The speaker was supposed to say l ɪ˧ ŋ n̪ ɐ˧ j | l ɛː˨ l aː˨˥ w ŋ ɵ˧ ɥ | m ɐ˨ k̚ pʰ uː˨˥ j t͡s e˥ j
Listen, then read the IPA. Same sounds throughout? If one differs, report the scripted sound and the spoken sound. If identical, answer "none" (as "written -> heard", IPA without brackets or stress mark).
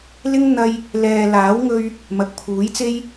ɪ˧ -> ɪ˥